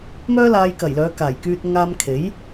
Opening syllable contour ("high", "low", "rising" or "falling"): high